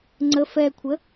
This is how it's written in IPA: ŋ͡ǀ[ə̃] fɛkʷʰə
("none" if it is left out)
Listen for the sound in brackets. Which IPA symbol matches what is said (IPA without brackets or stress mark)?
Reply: ə